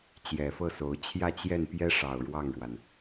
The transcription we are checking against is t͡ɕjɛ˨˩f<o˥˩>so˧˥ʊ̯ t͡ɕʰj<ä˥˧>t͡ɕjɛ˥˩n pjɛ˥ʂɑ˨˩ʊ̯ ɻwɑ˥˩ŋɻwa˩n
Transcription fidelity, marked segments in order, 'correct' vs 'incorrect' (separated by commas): incorrect, correct